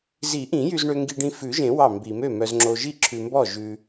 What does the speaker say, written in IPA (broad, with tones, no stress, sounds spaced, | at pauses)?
z i˨˩˦ ʔ ĩ˨˩˦ j y˨ z ɳ ø˨ ŋ ɡ i˨ ɖ ĩ˨ f ʉ˨˩˦ ʒ ẽ˨˩˦ w ɑ˥˩ m b i˨˩˦ m ø˥˩ m œ˨ z ŋ͡ǁ o˨ ʒ i˥˩ ǁʰ ʉ˨ m b ɔ˥˩ ʒ ʉ˨